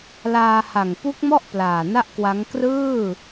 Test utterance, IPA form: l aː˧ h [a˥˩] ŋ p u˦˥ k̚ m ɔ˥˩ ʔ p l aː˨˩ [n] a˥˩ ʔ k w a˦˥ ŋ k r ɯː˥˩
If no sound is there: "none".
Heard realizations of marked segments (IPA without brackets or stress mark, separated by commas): a˨˩, n